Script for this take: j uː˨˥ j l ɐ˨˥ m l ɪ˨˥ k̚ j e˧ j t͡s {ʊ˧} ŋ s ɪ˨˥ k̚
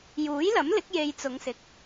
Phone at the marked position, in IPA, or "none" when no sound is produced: ʊ˨˧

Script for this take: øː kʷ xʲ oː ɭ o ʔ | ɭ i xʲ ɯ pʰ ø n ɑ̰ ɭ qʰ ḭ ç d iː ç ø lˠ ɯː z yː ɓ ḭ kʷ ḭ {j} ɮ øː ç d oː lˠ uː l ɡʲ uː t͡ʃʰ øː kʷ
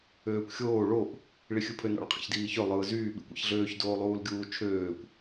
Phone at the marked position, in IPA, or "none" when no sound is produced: ç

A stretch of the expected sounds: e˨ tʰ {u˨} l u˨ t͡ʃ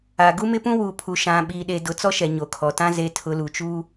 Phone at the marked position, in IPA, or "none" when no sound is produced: ʊ˨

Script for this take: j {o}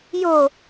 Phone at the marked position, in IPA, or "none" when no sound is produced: o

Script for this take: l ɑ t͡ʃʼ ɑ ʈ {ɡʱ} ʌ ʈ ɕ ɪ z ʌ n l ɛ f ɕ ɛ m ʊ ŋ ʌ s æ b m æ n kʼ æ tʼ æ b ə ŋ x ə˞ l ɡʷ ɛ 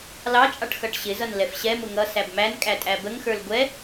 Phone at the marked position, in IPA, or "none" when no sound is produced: x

